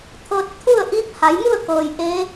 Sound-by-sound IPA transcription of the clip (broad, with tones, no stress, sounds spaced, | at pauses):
t̪ʰ ɤː˧ t̚ t̪ʰ u˥˨ ə̯ ʔ i˧˥ p̚ h a˩˧ j m u˥˨ ə̯ k ɤː˩ j ʔ e˧˥